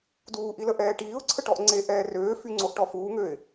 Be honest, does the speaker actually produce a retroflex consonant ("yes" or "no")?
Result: yes